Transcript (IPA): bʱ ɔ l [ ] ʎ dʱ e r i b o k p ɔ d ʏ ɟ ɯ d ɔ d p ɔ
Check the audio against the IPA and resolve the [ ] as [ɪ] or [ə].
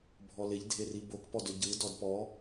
ɪ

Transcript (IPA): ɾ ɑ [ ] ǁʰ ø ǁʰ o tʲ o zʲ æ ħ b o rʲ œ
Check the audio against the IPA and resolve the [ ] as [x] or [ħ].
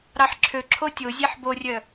ħ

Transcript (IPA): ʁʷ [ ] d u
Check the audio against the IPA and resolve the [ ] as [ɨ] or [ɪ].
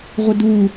ɪ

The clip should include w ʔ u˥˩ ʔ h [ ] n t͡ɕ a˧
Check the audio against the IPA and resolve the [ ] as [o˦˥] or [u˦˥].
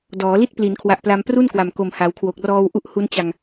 u˦˥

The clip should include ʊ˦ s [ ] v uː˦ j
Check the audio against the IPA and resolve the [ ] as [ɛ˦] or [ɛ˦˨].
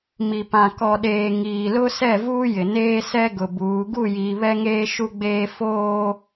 ɛ˦˨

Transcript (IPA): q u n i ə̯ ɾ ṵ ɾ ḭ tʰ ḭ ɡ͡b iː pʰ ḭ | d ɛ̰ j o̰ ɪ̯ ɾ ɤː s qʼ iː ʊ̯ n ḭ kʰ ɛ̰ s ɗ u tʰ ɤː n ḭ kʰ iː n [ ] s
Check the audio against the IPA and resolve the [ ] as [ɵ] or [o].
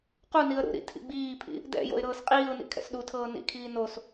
o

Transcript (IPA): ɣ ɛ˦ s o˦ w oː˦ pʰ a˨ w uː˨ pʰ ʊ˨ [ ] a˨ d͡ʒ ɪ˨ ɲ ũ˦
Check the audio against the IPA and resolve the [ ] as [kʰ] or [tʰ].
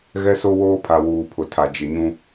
tʰ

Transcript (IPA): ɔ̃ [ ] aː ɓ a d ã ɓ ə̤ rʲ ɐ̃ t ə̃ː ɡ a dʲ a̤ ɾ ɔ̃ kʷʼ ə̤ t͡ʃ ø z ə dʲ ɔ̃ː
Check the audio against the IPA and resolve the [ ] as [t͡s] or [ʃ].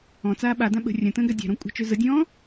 t͡s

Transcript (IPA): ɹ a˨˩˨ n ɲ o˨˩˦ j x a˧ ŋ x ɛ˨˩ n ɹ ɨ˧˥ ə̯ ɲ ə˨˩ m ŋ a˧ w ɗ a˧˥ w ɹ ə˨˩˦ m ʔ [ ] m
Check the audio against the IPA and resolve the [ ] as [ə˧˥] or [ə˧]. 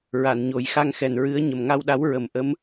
ə˧˥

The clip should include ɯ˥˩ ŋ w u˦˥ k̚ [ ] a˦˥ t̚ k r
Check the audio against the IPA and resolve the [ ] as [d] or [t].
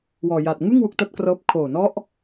t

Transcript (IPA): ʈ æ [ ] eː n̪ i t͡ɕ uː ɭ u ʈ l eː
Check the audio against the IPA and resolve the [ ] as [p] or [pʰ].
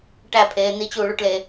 pʰ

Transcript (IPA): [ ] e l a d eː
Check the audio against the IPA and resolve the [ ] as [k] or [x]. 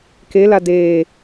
k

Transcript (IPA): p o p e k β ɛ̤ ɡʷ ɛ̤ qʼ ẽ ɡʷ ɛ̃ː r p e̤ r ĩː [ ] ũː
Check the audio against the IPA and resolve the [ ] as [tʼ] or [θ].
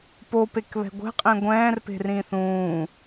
θ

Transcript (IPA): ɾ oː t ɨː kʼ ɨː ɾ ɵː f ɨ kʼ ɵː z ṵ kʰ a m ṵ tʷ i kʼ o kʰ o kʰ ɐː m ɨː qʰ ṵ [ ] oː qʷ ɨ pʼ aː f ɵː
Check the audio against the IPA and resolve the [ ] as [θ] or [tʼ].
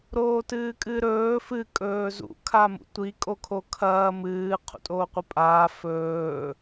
tʼ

